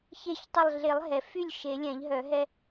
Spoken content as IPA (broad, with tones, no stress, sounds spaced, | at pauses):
ç e˧˩ ç tˤ ə˧˩ lˠ ɮ e˨˩˦ lˠ ɦ ɛ˩ f y˥˩ lʲ ʃ e˨˩˦ lʲ ɛ̃˨˩˦ ʎ ɦ œ˨˩˦ ɦ ɛ˦